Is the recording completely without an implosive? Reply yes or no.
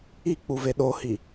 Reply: no